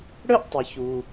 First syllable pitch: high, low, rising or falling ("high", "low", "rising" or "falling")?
high